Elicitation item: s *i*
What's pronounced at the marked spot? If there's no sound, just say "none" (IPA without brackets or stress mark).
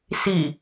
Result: i